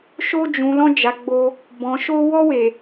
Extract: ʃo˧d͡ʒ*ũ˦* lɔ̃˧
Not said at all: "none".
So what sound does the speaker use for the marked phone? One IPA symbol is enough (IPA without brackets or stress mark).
ũ˨